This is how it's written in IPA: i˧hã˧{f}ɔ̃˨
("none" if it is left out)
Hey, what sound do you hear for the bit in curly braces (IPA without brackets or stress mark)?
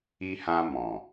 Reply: m